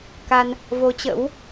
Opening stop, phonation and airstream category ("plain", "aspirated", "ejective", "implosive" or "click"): plain